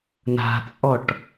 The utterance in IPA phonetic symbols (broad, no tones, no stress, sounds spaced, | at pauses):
n a̤ t͡sʼ ɔ ʈ